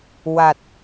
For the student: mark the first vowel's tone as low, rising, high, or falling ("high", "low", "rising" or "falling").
low